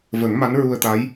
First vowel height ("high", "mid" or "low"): mid